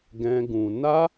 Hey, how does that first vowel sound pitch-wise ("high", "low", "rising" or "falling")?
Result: high